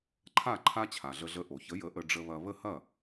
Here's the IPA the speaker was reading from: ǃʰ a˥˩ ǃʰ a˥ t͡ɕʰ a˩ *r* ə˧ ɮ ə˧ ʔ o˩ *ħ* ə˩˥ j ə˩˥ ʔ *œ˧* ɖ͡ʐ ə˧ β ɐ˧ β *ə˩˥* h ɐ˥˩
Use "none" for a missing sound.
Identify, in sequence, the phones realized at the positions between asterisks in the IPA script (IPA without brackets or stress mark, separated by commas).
ɮ, ç, ə˧, ə˥˩